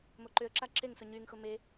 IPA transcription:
m o ǃ ʏ ə̯ ǁ a ǁ e ŋ s ʊ ɲ y ŋ x ʊ m e

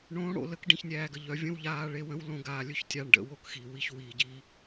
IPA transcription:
ɳ õː˨˦ ɽ o̰˨ l ə˨˦ k ɖ ĩ˨ ç nʲ æː˨ ɡ ə˨ ʎ œ˨ vʲ ə̃˦ w ʎ aː˧ ɭ e˧ w ə̃˦ w l õ˧ ɡ aː˨ lʲ ɵ˦ ç tʲ a˧ ɳ ɖ ə̰˧ w o˦ k x i˨ w i˧ ç w iː˨ ɟ i˧

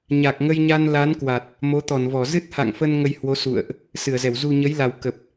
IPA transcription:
ɲ a˨˩ k̚ ŋ ə˧ j ɲ a˧ n l a˨˦ n k w a˨˩ t̚ | m o˨˦ t̪ ɔ˧˩ n v ɔ˧˩ z ɨ˦˥ t̚ h a̰˧˨ ŋ f ə˧ n ŋ ə˧ j h w o˨˦ s ṵ˧˨ ə̯ ʔ | s ɨ˧˩ ə̯ z ɛ˧˩ w z u˨˩ ɲ ə˨˦ j l a˨˩ w k ə˨˩ p̚

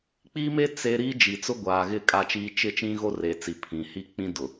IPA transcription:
k͡p i˦ m e˦ t͡s e˦ ɾ iː˦ d͡ʒ i˨ t͡s ʊ˦ ɡʷ aː˨ ɣ ɪ˦˨ kʼ a˦ t͡ʃ iː˦ t͡ʃ ɪ˦ t͡ʃ ĩ˦ ɣ o˦ r e˨ t͡s i˨ pʰ ĩ˨ h i˦ k͡p ĩ˦ d ʊ˨

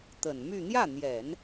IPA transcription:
t̪ ə˨˩ n m y˥˧ n̪ j ä˥˩ n̪ j ɛ˨˩˦ n

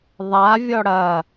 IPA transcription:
ðˤ a vʲ ɔ ɽ ɐ

